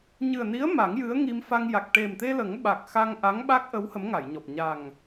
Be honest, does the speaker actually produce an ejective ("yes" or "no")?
no